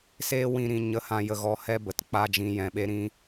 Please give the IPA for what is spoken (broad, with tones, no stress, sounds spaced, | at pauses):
s eː˦ w ĩ˦˨ ɾ ĩ˦˨ ɲ ə˧ h ã˧ j ə˧ ɣ ɔ˧ h ɛ˦ b ə˨ t k͡p a˦ d͡ʒ ĩ˧ j ɛ̃˧ ɓ e˦ ɾ ĩ˦